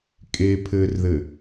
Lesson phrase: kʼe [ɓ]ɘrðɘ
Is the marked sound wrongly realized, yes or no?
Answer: yes